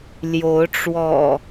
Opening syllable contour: rising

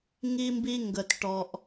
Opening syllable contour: high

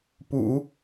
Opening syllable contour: low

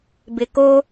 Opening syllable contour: low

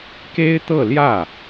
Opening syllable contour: high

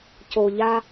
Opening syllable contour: low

